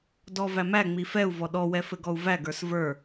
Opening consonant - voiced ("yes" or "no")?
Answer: yes